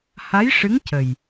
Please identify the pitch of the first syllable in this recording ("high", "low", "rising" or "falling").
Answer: rising